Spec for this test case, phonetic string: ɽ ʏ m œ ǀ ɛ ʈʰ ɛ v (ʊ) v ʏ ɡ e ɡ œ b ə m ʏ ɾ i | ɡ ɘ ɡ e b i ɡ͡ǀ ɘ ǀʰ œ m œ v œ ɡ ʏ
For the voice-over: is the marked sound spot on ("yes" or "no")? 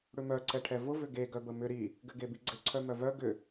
yes